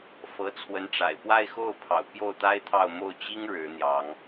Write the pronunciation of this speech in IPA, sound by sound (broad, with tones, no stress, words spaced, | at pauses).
fɤ˧˥t͡sʰwə˧˥nʈ͡ʂa̰˨˩ɪ̯ pwa˥˧ɪ̯xo˥˩ʊ̯pʰɑ̰˨˩ʊ̯ pjo˥˩ʊ̯t̪a˥ɪ̯t̪ʰɑ˥˧ʊ̯ mo˥˩ʊ̯t͡ɕi˥ŋ ɻɻ̩˧˥n̪jɑ˧˥ŋ